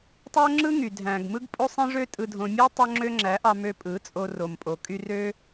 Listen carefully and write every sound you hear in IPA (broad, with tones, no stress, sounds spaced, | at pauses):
tˤ o˦ ŋ͡ǁ ɯ˦ ŋ y˨ dʱ æ̃˨ ɡ m ɯ˦ ɡ pʼ o˦ sˤ ẽ˦ ʐ ø˦ tʼ ɯ˧ dʱ õ˧ mʲ æ˦ tˤ o˧ ŋ͡ǁ ø˦ ŋ͡ǁ æ˨˦ ʔ ɑ˧ m ø˧ pʼ ɯ˨˦ t͡sʼ o˧ r o˨ m pʼ o˨ kʼ y˧ r ø˦